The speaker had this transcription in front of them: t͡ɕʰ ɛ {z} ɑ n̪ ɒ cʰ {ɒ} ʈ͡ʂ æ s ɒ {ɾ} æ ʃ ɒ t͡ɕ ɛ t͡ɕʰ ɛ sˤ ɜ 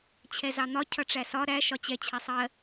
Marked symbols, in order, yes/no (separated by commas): yes, no, yes